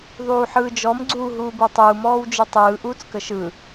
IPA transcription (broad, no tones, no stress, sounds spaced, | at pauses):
ðˤ uː ħ ɯː d͡ʒ ɔ m ɡ͡ǀ uː ɦ uː b u tˤ uː m ɔː w d͡ʒ ɯ tˤ ɯː ʔ uː t͡s k ə ʃ ɯ